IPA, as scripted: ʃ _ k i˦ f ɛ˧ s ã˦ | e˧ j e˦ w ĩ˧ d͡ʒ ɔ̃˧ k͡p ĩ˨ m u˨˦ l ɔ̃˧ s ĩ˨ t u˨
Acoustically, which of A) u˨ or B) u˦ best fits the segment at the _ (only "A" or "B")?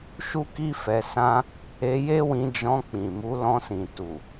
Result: B